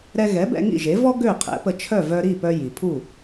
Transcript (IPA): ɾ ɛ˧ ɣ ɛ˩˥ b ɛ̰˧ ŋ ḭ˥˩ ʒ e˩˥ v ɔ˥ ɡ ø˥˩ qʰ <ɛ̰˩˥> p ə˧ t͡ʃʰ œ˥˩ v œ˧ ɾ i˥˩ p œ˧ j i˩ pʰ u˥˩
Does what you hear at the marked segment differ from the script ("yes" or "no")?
no